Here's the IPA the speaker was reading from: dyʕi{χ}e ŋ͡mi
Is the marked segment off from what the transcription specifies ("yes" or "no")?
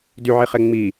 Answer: no